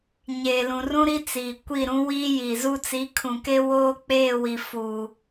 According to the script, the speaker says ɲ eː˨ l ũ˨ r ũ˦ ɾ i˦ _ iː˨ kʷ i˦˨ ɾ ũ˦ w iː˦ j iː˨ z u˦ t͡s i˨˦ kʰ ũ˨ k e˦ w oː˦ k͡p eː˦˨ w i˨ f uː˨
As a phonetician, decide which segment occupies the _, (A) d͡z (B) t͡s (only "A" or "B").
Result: B